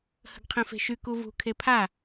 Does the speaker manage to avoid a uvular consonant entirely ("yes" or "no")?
no